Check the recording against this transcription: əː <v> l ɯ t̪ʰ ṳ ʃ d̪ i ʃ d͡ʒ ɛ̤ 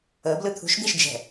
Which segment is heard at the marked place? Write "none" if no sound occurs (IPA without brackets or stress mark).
b